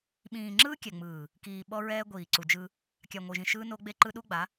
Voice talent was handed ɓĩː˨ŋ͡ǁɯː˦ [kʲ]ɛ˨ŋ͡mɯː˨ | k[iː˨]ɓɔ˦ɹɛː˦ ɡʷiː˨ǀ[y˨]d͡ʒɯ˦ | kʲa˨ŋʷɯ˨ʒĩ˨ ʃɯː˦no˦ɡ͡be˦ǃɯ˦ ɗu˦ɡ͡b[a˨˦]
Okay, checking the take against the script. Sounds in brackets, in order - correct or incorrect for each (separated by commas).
correct, correct, incorrect, correct